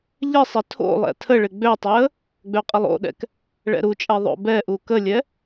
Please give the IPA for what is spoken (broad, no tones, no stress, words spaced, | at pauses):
ʎɪsˤɪ tʰo̰lˠɛ̰ tʰəɭɪ ɡ͡bøtˤɛə̯ | ɡ͡bøqʼəlˠo̰ɗɛ̰k | ɭɛ̰ɾut͡ʃʼɛ ðˤo̰bɛʔu kəlʲɛ